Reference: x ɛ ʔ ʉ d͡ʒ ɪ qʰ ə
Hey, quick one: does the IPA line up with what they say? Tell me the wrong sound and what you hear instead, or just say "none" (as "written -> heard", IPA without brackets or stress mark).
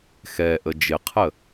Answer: ʉ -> ə